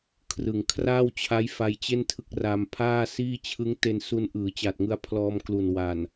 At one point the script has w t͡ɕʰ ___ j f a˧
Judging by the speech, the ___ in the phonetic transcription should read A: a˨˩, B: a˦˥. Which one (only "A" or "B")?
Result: B